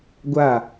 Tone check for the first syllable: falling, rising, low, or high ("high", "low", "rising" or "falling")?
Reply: falling